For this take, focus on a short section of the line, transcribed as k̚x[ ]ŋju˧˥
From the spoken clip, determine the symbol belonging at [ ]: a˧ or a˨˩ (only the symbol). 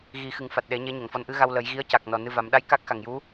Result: a˨˩